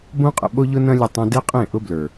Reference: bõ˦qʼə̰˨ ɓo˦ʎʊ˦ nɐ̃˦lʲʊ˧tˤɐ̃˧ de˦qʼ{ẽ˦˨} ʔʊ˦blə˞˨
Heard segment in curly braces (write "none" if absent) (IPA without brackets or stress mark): ẽ˦˨